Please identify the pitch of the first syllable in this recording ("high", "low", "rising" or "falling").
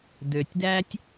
low